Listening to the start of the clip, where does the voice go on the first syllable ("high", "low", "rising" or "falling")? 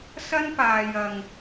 high